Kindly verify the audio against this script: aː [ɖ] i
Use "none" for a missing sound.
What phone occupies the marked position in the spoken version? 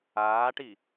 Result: ʈ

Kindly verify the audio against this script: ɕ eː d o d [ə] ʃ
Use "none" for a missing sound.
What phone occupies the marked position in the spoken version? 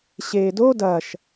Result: ɐ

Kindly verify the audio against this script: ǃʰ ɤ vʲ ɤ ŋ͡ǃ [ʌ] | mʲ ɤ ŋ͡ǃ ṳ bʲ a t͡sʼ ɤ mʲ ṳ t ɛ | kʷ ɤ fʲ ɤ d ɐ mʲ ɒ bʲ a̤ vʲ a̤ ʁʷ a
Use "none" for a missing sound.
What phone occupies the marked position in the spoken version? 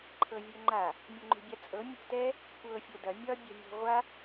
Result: a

